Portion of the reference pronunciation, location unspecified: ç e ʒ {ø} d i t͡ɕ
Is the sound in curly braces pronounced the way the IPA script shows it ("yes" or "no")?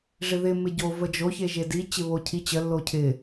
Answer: no